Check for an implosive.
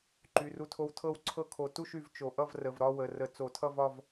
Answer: absent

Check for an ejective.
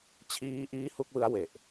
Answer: absent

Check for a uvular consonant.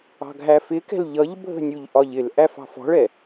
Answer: absent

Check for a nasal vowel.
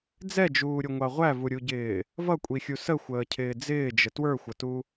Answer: absent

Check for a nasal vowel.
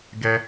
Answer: absent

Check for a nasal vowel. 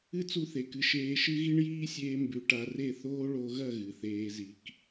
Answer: absent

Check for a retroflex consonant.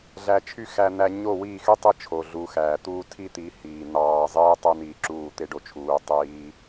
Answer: present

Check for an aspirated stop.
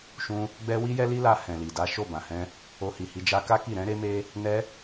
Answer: absent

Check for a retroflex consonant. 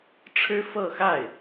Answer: present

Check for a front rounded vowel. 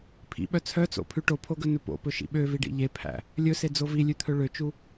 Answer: present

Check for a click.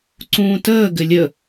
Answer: present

